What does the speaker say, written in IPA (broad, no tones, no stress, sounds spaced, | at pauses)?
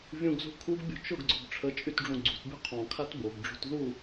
vʲ ũ ɡ z ṳ kʰ u ɡ bʲ o̤ t͡ʃ ʊ ɡ ɡ͡ǀ ʊ b ʈ͡ʂʰ ə t͡ʃʼ y t ɖ͡ʐ ũ ɡ͡ǀ ṳ t bʲ ṳ qʰ ɔ̃ kʰ a t b o ɡ ɖ͡ʐ o̤ t ð u